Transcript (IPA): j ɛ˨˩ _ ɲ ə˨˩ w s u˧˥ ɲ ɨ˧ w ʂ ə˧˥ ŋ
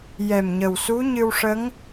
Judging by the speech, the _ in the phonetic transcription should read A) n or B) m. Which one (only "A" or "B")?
B